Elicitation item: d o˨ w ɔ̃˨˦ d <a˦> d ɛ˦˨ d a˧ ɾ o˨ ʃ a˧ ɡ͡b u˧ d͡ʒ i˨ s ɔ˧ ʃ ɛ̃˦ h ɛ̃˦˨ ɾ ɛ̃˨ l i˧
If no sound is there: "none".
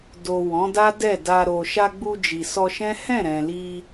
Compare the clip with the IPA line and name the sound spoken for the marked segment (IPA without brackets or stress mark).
a˦